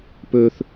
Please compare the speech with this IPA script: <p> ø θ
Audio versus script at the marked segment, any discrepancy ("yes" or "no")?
no